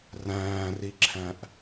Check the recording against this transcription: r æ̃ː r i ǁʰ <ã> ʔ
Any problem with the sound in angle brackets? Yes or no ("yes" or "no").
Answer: yes